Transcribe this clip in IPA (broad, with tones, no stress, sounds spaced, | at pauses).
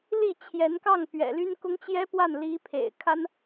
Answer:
l i˥˩ t͡ɕʰ j ɛ˧˥ n k ɑ˥˩ ŋ p ɥ ɛ̰˨˩ l y˥ n k ʊ˥ ŋ t͡ɕ j ɛ˥ p w a˥˩ n l i˧˥ pʰ ḛ˨˩ ɪ̯ kʰ a˥ n